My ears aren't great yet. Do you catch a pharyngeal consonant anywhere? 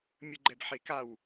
yes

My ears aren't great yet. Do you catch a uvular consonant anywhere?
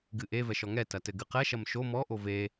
yes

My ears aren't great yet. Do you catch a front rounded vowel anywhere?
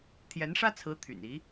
yes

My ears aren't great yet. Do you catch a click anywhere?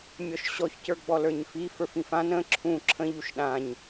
yes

